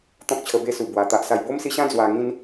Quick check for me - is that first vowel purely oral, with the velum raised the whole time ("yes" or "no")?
no